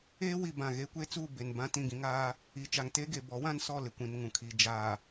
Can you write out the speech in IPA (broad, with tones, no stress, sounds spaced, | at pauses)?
eː˦ w i˦˨ b ã˦˨ ɣ e˦ kʷ e˦ t͡s uː˦˨ b e˨ n b ã˦ t ĩ˦˨ ɡ ĩ˦ ŋ aː˦ | i˨ t͡ʃ a˨ ŋ t e˦ ɡ e˨ b ɔ˨˦ w ã˦ n s ɔ˦˨ l ɪ˨ kʷ ĩ˨ n ŋ ũ˨ kʰ i˨ d͡ʒ aː˨